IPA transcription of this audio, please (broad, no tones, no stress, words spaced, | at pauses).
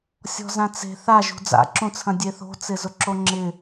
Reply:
sʲɔ̤zãt͡se̤ θaʒṳ d͡za̰ǁũt͡sʰɐ̃ dʲeθo̤t͡sɪ zʊǁoŋ͡ǁɪ